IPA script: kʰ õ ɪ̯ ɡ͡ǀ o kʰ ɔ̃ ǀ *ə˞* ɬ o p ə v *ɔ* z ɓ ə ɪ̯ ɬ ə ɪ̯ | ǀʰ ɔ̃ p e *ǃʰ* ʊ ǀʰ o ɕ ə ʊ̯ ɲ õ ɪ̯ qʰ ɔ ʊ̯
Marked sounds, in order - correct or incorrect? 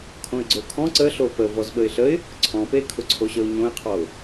incorrect: ə, correct, incorrect: kʰ

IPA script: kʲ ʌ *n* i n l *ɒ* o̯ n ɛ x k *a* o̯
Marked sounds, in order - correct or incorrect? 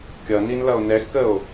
correct, incorrect: ʌ, incorrect: ə

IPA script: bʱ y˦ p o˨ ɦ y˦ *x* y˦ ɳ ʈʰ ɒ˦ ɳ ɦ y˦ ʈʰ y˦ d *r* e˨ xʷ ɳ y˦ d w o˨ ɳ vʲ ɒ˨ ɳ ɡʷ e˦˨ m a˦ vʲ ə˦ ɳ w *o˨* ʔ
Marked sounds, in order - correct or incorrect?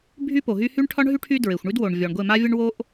incorrect: h, incorrect: ɹ, incorrect: o˦

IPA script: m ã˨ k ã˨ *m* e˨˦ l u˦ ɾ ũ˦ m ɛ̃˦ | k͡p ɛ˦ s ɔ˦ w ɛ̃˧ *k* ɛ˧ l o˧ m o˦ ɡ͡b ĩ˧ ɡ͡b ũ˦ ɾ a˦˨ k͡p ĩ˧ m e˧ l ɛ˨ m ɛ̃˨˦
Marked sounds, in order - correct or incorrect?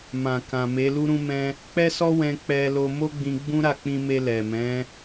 correct, incorrect: k͡p

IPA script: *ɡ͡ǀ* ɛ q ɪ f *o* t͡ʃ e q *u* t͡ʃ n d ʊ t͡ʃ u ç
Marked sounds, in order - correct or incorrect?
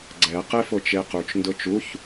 correct, correct, correct

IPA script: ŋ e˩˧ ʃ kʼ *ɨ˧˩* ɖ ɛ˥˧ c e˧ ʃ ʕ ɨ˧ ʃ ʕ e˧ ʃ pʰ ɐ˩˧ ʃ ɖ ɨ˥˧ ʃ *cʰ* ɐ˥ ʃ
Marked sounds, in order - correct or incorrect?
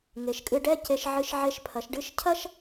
incorrect: ɨ˧, correct

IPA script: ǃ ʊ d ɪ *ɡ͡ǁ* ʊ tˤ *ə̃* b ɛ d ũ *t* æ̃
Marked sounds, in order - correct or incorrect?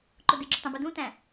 correct, correct, correct

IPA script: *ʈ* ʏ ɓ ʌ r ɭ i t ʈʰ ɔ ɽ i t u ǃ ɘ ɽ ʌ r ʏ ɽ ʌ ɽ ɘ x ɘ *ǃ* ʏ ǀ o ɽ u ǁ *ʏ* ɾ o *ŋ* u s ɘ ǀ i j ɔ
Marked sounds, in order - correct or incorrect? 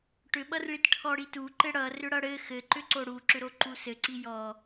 correct, correct, correct, incorrect: ǃ

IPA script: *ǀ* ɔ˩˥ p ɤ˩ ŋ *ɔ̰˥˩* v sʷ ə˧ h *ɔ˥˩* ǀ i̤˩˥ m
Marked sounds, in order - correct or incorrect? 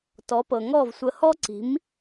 incorrect: t, incorrect: ɔ˥˩, incorrect: ɔ˥

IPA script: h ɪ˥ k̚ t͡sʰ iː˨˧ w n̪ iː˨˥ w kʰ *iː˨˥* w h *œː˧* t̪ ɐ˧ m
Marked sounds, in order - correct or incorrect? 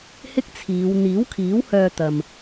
correct, correct

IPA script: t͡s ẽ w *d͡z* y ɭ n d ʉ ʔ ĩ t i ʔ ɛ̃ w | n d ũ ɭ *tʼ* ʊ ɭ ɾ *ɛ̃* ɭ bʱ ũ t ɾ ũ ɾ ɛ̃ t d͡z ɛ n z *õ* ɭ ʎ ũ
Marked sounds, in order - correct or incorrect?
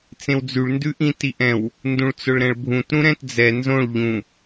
correct, incorrect: t͡s, correct, correct

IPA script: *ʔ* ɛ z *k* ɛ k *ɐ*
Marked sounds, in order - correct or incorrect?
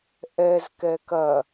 correct, correct, correct

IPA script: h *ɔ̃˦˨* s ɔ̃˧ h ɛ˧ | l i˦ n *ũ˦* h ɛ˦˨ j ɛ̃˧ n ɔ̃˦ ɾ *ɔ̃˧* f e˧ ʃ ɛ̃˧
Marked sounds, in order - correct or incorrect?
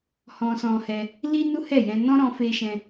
incorrect: ɔ̃˧, incorrect: u˦, correct

